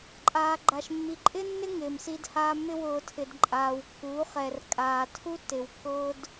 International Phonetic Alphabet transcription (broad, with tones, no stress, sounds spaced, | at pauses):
ǃʼ aː˨ ɡ͡ǃ a˨ ʃ mː i˨ ǃʼ ɪ˦ nː ɪ˦ ŋ ɪː˨ m s i˦ d h aː˦ m ɪ˦ w ʊː˨ tʰ ɪ˨ d ǃʼ aː˨ w kː uː˨˦ χ ɛ˨ r kʼ aː˨ tʰ u˦ tː ɪ˨ w kː ʊː˦ d